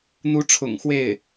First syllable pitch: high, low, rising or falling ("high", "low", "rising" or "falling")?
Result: rising